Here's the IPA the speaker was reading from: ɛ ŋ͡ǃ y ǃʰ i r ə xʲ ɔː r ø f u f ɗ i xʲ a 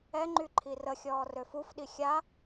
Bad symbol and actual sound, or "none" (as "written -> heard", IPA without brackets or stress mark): none